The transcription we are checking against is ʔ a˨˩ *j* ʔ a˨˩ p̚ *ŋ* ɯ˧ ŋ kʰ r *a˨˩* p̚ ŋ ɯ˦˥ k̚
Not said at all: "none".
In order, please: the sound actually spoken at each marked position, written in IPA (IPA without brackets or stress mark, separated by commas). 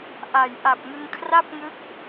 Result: j, ŋ, a˥˩